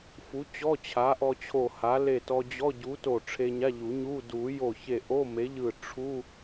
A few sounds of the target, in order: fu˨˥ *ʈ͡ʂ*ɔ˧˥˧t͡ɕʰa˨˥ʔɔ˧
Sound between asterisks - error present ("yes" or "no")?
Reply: yes